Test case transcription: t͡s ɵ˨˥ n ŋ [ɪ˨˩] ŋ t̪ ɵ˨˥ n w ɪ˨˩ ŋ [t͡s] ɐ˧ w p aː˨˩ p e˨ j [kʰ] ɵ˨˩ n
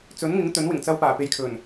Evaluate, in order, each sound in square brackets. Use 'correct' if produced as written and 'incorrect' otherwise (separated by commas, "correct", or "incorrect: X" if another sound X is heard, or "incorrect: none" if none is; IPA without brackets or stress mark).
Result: incorrect: ɪ˨˥, correct, correct